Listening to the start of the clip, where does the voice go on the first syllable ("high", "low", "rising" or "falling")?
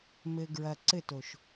low